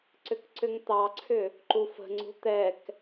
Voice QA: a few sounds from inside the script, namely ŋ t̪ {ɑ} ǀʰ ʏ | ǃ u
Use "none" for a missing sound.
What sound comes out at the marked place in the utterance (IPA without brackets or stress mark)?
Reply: ɑ